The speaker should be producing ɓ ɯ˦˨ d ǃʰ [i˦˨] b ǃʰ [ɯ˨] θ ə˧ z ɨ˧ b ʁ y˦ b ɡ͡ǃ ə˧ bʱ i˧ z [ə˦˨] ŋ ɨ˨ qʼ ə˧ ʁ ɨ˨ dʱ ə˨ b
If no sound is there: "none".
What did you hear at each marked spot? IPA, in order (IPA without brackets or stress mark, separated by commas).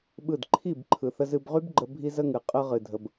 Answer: i˦˨, ɯ˨, ə˧